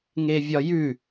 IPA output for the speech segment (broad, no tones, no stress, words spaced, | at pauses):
ŋevʲɒjʉ